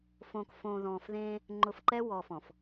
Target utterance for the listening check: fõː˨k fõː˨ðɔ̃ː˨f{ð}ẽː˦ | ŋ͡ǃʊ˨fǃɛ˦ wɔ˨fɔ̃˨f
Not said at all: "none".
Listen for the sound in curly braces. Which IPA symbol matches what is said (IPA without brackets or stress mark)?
ð